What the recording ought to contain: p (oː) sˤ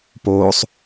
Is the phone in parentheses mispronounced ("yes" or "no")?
no